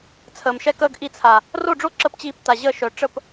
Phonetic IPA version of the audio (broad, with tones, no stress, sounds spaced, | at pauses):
t͡sʰ əː˨ m ʃ ɛ˧ k əː˧ ɡ ʔ i˧ t͡sʰ a˨ | r o˦˨ ɖ͡ʐ o˦ ǁ ə˦˨ p t͡ɕ iː˧ p t a˨ ʑ əː˦˨ ʃ œ˨ ʈ͡ʂ ə˦˨ p